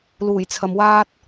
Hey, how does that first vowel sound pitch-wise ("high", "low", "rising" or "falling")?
low